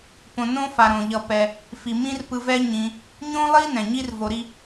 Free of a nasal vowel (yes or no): no